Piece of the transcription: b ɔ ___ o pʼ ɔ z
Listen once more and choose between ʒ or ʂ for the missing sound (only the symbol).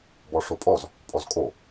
ʂ